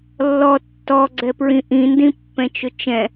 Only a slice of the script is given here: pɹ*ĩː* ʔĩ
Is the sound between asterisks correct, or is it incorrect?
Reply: incorrect